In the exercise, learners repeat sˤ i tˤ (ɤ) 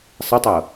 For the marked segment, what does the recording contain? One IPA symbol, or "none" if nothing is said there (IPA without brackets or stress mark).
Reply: ɤ